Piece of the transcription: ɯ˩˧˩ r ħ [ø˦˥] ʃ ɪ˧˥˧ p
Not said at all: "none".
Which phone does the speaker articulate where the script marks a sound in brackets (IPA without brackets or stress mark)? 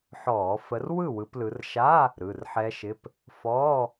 ɛ˦˥